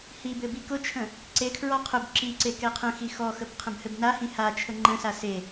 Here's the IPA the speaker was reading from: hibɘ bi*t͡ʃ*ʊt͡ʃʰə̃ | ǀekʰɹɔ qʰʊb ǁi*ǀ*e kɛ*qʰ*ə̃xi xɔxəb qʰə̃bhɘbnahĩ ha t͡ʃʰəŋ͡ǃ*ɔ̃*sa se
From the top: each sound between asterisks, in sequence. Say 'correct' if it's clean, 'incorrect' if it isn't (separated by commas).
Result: incorrect, correct, correct, incorrect